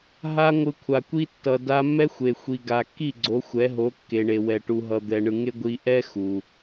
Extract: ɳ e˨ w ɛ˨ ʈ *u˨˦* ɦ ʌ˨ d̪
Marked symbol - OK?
no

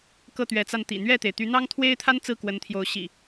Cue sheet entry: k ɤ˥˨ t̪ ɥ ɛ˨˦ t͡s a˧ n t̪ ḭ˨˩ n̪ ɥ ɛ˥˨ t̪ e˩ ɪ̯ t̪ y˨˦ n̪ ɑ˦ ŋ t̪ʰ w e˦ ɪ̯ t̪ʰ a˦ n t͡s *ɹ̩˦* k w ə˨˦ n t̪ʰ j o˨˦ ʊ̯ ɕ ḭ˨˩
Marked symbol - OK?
no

